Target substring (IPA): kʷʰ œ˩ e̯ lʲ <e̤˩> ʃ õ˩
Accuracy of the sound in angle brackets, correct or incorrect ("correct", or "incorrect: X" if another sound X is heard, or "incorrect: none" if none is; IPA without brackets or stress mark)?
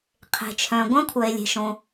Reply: correct